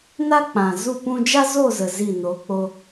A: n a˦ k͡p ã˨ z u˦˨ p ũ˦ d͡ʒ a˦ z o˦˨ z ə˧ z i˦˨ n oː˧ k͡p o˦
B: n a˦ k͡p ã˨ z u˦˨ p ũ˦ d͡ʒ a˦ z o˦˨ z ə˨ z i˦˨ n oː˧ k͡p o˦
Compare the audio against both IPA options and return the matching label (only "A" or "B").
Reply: B